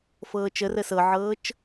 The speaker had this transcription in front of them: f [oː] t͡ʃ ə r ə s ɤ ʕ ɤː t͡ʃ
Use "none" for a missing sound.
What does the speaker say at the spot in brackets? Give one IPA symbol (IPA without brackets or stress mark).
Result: ɤː